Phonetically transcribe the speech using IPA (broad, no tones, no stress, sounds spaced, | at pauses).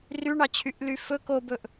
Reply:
r y ɳ ɑ t͡ɕʰ y ʔ l y f ɵ k o b ɵ ʔ